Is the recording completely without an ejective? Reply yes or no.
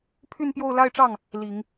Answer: yes